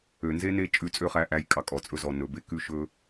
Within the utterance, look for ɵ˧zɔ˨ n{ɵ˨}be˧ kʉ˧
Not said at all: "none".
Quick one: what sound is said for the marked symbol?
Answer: ɵ˨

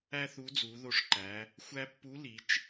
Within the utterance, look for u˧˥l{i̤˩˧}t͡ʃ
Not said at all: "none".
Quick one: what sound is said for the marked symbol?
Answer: i˩˧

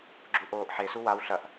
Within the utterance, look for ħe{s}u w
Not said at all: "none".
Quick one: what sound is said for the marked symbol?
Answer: s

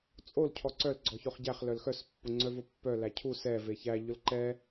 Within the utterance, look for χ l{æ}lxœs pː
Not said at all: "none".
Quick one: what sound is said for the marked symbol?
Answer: œ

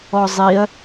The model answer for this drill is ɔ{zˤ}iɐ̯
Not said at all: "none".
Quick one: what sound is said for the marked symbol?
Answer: zˤ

